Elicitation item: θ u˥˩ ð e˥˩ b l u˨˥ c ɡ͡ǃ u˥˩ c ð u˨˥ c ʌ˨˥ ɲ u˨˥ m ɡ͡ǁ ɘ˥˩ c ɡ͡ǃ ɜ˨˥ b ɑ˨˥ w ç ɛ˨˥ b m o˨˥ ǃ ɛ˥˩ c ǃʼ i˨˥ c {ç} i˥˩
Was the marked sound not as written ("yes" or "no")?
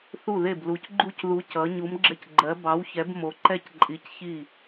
no